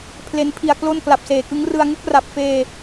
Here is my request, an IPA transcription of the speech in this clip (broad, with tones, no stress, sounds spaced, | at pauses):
pʰ l e˦˥ n pʰ i˧ a̯ k l o˥˩ n k l a˨˩ p̚ s eː˨˩ k ɯ˦˥ ŋ r ɯ˧ a̯ ŋ u˦˥ k̚ r a˨˩ p̚ f eː˧